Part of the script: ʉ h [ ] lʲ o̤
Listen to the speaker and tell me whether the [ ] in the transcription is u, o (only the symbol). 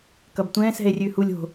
u